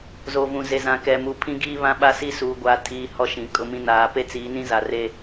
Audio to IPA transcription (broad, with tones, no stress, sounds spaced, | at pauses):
z o˨ v ũ˨ z e˨ z ã˨ k ɛ˨ m u˨ pʰ ĩ˦ ɡ iː˦ β ã˦ ɓ a˦ s i˦ s uː˨ ɡʷ aː˨ tʰ iː˨ h ɔ˦ ʃ ĩ˨ kʼ ʊ˦ m ĩ˦ n aː˨ p e˦ t͡s iː˨˦ n ĩ˦ z a˨ r e˦